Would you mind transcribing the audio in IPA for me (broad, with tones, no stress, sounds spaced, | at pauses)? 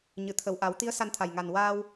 ɲ ɨ˨˩˨ t̪ʰ ə˨˩ w ʔ a˨˩˦ w t̪ i˧˥ ə̯ s a˧ n t̪ʰ a˨˩ j ŋ a˨˩ n w aː˧ w